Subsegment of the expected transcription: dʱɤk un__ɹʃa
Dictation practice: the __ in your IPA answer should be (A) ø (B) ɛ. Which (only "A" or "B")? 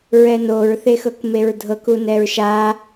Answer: B